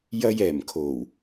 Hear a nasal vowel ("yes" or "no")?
no